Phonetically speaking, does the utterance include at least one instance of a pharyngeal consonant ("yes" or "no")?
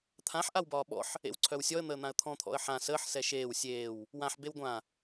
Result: yes